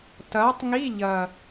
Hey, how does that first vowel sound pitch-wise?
rising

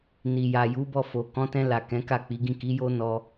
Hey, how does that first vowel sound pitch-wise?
low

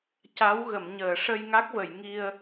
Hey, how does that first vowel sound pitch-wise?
rising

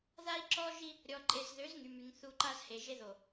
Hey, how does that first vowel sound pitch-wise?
high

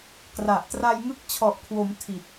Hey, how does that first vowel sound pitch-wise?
low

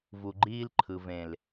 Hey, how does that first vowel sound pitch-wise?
low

